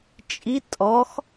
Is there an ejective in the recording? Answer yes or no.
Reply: yes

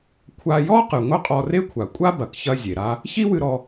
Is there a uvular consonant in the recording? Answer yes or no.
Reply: yes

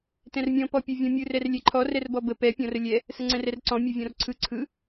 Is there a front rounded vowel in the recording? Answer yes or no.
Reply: no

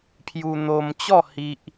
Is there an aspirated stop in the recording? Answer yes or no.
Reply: yes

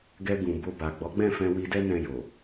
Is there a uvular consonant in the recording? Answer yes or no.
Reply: no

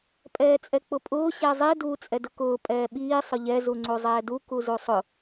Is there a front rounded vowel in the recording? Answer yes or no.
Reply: no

